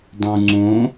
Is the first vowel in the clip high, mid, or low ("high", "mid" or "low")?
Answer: high